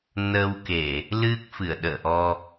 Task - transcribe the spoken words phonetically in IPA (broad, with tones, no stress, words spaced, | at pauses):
nə˧wke˧˩˨ | lɨ˦˥k̚fɨ˧˩ə̯ɗə̰ː˧˨ ʔɔ˧